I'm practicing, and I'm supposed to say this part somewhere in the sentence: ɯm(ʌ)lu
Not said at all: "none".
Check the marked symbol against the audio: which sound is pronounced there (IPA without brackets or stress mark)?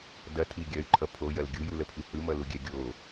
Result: ʌ